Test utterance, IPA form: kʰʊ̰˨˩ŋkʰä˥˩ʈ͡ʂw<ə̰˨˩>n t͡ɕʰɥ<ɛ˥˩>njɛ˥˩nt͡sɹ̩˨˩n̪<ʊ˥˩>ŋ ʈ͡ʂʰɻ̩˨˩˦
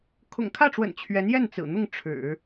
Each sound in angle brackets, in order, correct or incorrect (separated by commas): correct, incorrect, correct